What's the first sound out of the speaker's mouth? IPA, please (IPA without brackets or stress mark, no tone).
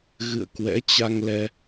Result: ɣ